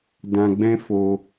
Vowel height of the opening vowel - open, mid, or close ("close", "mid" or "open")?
open